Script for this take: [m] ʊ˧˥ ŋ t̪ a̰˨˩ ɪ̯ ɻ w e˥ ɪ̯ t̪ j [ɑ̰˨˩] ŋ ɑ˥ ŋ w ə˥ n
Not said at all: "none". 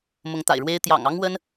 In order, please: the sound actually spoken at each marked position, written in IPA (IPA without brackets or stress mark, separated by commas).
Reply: m, ɑ̰˨˩